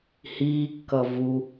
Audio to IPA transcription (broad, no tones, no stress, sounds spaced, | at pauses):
h iː kː ʌ v u